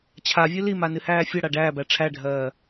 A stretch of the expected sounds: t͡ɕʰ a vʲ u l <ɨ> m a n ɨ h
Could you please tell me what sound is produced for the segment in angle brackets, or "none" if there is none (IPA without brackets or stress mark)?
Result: i